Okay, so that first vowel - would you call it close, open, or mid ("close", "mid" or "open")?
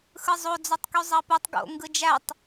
close